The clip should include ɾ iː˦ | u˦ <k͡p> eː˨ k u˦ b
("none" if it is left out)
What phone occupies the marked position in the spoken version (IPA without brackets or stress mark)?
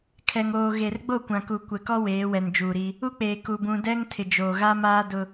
k͡p